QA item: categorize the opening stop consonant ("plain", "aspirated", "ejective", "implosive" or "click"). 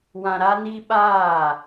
implosive